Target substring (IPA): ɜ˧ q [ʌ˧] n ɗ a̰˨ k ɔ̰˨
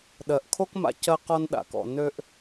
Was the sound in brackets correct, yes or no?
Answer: no